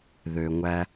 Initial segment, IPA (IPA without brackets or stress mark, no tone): ð